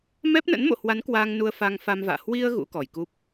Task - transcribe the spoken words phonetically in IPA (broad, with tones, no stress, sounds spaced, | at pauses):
m ɛ˦˥ p̚ n ə̰˧˥ n m o̰˧˨ h w a˨˦ n k w a˧ ŋ n u˧ ə̯ f a˧ ŋ f a˧ m v a̰ː˧˨ h w i˧ ə̯ ɣ ṵ˧˥ k ɔ˧˩ j k u˦˥ p̚